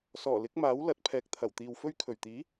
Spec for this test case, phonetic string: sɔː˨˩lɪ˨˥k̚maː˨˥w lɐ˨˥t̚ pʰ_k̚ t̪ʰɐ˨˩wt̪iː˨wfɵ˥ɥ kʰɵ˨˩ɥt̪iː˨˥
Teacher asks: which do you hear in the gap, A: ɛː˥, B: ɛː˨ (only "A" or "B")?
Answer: B